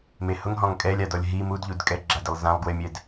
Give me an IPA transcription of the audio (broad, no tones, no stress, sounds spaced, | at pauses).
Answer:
m e h ʊ ŋ ɦ ɔ̃ ŋ kʼ ɛ lʲ a d ɔ lʲ ɦ i m u d ʎ u d kʼ ɛ ɡ͡ǁ a d ɪ lˠ z ã lˠ ɡ w ɪ mʲ ɛ d